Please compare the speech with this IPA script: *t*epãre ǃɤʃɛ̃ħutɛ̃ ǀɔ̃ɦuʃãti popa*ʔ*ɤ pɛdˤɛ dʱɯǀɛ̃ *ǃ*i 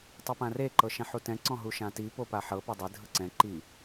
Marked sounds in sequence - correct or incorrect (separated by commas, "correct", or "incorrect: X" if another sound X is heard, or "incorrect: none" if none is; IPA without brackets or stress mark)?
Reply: incorrect: tˤ, incorrect: ħ, correct